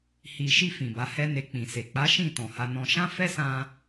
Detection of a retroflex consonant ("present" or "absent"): absent